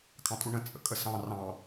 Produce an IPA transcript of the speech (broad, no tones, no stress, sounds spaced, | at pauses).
kʰ ɑ̃ tʼ u ɳ ə̃ t͡sʼ ə̰ kʼ ə s ɑ̃ r ɑ̃